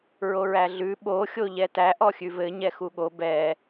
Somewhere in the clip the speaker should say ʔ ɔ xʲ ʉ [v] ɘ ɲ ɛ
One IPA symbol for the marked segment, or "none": v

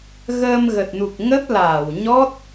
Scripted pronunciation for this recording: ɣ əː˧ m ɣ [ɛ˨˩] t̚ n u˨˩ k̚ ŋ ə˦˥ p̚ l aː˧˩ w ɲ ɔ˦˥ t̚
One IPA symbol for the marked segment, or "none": ə˨˩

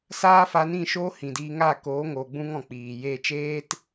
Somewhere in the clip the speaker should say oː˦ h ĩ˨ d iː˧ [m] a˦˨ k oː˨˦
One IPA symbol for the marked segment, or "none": ŋ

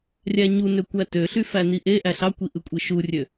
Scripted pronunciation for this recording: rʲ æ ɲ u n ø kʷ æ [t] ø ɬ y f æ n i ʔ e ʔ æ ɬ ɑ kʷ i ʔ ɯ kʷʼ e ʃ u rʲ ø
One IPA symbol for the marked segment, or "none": t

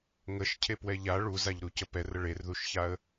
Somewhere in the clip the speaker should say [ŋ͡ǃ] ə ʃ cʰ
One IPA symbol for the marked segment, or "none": ŋ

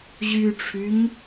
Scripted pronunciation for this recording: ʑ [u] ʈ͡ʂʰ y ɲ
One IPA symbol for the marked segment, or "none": y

